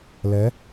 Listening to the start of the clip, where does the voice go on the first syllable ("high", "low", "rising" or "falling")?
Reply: rising